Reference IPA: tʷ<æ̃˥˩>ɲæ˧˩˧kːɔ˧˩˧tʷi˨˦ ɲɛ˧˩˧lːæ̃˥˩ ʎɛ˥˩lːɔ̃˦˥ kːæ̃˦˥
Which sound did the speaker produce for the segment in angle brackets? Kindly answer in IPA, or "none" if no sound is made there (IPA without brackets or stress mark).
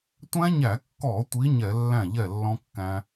æ̃˦˥